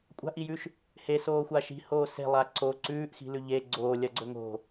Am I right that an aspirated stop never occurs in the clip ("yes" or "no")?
yes